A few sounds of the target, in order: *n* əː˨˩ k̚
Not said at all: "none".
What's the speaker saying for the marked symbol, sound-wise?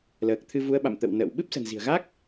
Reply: l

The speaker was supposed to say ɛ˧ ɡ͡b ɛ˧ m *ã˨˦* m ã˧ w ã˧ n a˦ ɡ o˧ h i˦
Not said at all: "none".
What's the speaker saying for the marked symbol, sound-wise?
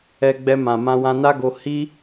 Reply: ã˨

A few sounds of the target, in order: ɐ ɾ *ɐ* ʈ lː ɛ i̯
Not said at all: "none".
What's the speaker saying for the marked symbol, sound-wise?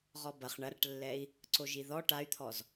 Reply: ɐ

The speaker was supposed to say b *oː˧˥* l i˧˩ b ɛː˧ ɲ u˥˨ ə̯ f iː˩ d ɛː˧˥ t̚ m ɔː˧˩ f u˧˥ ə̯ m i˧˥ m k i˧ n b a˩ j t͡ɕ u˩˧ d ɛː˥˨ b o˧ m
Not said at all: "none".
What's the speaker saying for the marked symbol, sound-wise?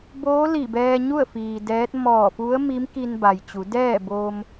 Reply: oː˧˥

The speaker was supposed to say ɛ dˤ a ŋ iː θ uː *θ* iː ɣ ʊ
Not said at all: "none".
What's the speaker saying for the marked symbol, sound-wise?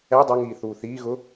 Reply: θ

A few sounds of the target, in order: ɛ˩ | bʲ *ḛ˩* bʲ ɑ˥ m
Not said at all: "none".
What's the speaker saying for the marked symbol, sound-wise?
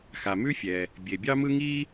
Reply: e˩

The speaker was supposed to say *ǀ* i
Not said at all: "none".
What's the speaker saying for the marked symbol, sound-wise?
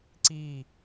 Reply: ǀ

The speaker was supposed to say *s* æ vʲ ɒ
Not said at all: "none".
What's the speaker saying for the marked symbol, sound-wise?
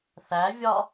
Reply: θ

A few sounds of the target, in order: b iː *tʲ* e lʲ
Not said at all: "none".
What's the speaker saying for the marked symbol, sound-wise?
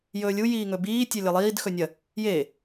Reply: tʲ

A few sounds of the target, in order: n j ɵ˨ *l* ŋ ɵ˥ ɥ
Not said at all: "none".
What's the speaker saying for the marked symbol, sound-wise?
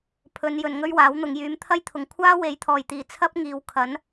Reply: n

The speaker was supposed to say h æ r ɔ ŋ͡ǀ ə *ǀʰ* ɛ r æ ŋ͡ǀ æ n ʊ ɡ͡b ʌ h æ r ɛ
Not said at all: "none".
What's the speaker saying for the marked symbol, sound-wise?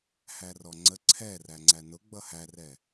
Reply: ǀʰ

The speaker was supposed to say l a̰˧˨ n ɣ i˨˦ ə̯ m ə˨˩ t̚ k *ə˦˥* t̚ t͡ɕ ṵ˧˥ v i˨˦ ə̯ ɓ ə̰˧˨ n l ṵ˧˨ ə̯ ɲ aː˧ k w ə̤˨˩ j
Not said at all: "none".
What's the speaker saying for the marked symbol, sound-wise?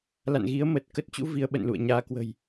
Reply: ə˦˥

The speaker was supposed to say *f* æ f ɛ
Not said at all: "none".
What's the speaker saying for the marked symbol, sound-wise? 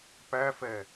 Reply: p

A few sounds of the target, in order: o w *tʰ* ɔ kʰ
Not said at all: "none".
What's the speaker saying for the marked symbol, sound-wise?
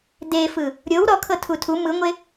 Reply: ɾ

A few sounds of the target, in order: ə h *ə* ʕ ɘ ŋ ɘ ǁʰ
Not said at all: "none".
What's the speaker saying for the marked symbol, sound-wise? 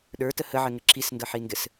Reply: ə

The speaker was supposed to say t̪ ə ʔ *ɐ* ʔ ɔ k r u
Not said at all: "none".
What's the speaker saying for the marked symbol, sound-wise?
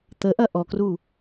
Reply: ɐ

